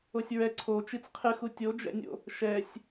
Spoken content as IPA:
o sʲ ɹ ɛ ǀʰ o t͡ʃ i t͡s qʰ ɨ x u tʲ o d͡ʒ ɛ̰ nʲ o̰ | ʃ ɛ sʲ

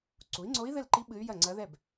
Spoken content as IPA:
ǀ u˩˥ i̯ ŋ͡ǀ o˧˥ i̯ ð ɘ˥˩ l ǃ i˧˥ ɓ ɨ˧˥ y̯ j ɐ˥˩ ŋ͡ǀ ɐ˧˥ ð ɛ˥˩ b

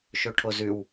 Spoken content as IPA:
ʃ ɵ ʈʰ o z ʉ w

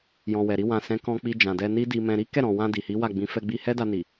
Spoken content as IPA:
j ɔ̃˨ w ɛ˨ ɾ i˧ w ã˨ s ɛ̃˨˦ k ɔ̃˧ k͡p i˧ d͡ʒ ã˨ d ɛ˧ n i˦ d i˧ m ɛ̃˧ ɾ i˦ k ɛ˦˨ ɾ ɔ̃˨ w ã˧ d i˨ h i˨˦ w a˦˨ ɡ͡b ĩ˨˦ f ɛ˧ ɡ͡b i˧ h ɛ˦ d a˧ n i˨

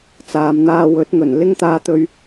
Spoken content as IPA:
t͡s aː˨ m n̪ aː˧ w ɵ˨˥ t̚ ŋ ɵ˨˩ n l ɪ˥ ŋ t̪ aː˧ t̪ ɵ˧ ɥ

